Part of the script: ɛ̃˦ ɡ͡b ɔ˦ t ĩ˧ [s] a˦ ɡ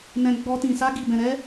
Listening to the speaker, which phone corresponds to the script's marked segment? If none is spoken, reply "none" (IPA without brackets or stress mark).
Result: s